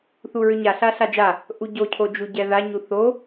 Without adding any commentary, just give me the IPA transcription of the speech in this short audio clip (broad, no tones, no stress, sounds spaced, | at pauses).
θ u ɹ ʏ ɲ a ɬ a ɬ a d͡ʒ a | ʔ u ɟ o cʰ o d͡ʒ u ɟ ɛ ð a ɲ u θ o